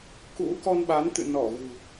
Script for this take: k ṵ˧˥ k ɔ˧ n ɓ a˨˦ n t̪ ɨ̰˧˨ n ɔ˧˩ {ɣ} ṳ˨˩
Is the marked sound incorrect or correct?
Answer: correct